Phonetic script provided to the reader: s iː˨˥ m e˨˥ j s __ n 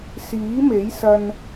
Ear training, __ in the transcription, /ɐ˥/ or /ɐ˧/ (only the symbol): ɐ˧